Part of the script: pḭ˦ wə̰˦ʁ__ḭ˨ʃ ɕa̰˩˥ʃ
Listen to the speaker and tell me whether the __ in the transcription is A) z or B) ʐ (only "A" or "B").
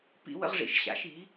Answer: B